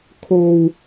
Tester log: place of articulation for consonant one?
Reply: velar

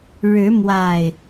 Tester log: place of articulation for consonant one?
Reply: retroflex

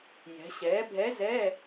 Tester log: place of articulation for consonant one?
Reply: palatal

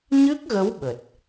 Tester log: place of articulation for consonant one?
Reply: palatal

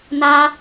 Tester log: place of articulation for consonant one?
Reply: alveolar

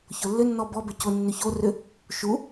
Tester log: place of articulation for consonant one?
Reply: palatal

